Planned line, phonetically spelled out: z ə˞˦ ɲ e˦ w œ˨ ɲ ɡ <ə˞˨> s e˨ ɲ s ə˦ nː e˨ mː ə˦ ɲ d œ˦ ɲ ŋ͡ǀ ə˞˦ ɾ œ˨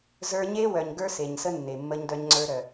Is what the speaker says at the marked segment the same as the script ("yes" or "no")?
no